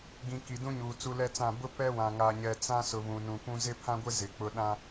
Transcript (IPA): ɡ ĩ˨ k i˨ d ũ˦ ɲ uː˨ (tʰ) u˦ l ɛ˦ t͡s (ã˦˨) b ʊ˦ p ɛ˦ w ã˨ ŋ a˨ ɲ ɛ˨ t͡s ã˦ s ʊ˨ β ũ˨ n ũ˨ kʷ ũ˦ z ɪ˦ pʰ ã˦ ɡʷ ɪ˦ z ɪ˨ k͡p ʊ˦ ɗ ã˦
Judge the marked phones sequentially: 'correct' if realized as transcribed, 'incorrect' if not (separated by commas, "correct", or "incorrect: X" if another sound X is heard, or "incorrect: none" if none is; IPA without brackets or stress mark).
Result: incorrect: t͡s, correct